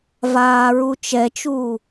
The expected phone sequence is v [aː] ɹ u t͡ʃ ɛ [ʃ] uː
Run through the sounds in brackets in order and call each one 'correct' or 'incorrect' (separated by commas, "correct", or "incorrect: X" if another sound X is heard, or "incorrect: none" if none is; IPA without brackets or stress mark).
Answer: correct, incorrect: t͡ʃ